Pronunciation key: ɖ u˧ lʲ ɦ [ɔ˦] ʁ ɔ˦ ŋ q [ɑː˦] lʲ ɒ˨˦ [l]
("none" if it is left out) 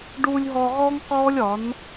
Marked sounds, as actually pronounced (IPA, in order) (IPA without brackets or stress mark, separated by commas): ɔ˧, ɔː˦, n